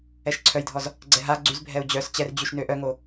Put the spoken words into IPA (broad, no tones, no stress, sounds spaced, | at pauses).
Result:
ɛ ʃ ǀʰ œ j dʱ ɔ z | ɡ͡ǀ ɛ ɦ a ɡ͡ǀ y z bʱ ɛ u̯ d͡ʑ œ s t͡ɕ ɛ r d͡ʑ y ʃ n ø ʔ œ ŋ o